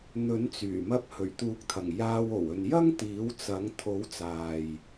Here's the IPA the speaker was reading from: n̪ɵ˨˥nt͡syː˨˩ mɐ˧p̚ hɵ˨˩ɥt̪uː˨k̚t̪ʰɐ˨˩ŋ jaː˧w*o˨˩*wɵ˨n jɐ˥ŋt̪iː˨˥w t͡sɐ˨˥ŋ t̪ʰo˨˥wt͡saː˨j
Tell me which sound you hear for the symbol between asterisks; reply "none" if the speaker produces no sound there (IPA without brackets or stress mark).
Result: o˨˩